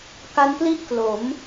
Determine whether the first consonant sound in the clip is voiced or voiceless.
voiceless